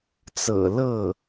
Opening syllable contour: low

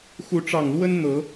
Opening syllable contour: rising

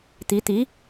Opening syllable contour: rising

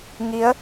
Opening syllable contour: rising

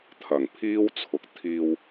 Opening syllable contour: low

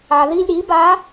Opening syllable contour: low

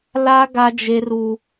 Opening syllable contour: high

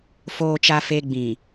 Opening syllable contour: low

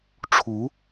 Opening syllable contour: rising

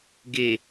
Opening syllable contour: low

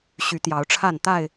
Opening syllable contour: rising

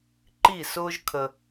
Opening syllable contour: falling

